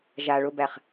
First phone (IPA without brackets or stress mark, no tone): ʒ